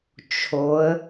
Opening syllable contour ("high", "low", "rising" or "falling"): rising